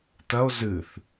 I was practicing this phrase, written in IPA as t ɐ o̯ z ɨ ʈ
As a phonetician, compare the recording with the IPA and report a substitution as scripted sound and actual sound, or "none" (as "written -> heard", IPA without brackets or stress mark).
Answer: ʈ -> θ